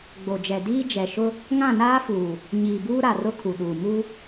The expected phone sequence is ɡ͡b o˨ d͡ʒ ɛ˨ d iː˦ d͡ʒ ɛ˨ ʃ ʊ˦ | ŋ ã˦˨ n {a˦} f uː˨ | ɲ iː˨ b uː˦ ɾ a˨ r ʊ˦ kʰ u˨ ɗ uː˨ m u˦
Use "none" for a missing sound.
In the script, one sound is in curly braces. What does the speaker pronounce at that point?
aː˦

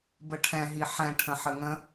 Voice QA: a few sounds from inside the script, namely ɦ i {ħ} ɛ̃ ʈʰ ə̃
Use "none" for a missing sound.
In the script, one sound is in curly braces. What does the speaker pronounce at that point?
ħ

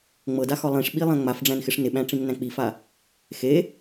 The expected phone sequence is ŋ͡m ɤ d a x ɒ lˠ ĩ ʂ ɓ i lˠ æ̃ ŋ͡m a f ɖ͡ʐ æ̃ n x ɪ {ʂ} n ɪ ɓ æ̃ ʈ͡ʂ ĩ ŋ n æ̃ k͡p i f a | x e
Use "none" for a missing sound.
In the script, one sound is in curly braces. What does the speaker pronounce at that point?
ʂ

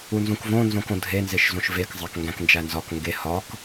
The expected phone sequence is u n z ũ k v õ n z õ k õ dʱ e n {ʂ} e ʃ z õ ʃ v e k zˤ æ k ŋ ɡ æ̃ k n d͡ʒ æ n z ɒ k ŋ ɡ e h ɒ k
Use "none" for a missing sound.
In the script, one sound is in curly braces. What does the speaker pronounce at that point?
z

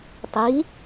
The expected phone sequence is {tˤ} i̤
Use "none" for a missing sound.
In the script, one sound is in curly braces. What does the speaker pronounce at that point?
tˤ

